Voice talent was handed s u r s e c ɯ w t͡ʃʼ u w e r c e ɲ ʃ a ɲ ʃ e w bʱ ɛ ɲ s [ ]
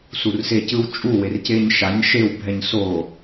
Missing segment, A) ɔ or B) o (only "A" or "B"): B